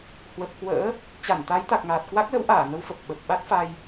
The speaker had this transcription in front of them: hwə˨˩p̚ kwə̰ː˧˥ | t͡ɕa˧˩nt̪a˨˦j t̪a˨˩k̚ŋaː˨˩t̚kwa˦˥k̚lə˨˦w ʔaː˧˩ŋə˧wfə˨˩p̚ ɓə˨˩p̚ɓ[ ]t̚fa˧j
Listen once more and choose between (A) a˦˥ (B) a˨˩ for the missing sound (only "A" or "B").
A